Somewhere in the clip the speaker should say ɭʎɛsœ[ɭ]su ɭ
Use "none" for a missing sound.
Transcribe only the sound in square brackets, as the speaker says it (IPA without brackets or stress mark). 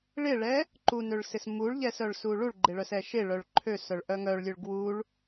ɭ